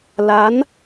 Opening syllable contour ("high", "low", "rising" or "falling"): rising